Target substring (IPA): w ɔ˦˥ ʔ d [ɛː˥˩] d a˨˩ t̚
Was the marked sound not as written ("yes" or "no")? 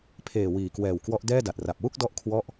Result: no